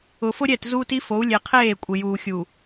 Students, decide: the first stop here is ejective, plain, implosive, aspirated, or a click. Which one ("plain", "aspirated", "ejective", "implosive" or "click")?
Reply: plain